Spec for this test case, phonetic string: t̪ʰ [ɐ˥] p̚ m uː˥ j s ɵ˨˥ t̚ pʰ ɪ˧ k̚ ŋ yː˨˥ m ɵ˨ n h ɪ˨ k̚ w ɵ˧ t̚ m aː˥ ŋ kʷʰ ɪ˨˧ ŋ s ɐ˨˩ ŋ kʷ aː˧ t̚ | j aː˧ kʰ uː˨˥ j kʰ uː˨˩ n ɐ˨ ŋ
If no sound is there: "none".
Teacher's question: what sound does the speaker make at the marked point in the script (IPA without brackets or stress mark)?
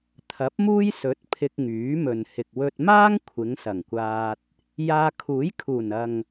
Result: ɐ˨˥